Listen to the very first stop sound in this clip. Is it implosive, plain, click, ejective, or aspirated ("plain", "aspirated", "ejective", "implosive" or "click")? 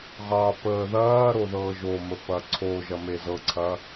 plain